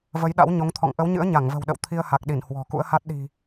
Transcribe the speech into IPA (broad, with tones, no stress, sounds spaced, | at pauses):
v ə˨˦ j ɗ a̰˧˥ w ɲ o˨˦ ŋ t̪ʰ ɔ̰˧˨ ŋ ʔ ə˨˦ w ɲ ɨ̰˧˥ ə̯ ɲ a˧˩ ŋ v ə̤˨˩ w ɗ ə̰˧˨ w t̪ʰ i˧ ə̯ h a˨˩ k̚ ɗ i˧˩ n h w ɔ̤˨˩ k ṵ˧˥ ə̯ h a˦˥ t̚ ɗ i̤˨˩